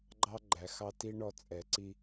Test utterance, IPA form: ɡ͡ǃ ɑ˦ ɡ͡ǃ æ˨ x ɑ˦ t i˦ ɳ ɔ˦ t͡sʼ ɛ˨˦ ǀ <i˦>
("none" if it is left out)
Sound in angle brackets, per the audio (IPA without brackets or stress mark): i˦